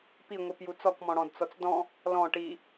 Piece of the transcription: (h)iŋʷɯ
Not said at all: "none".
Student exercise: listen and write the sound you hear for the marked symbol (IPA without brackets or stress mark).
p